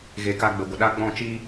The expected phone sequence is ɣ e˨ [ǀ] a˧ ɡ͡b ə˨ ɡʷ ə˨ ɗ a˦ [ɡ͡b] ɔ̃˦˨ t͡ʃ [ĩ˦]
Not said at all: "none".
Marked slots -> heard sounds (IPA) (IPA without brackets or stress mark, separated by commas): k, ɡ͡b, i˦